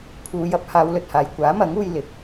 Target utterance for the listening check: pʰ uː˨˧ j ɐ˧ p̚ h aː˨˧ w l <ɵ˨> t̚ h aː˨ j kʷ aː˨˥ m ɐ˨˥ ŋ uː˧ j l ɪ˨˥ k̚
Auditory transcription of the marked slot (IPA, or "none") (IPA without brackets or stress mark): ɵ˨